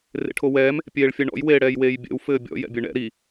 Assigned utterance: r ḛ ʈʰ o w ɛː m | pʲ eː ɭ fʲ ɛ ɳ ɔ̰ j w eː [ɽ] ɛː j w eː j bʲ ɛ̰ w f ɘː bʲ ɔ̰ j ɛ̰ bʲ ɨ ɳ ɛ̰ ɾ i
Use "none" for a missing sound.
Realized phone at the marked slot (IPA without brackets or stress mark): ɽ